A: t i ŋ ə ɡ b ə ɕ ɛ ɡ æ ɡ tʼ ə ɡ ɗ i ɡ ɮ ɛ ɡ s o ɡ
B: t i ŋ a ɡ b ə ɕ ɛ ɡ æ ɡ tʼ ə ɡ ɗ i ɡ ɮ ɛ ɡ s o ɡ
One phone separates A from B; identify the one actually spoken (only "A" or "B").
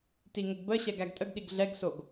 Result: A